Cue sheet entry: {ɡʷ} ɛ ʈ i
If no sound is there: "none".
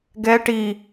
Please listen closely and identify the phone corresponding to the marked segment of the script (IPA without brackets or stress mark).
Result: ɡ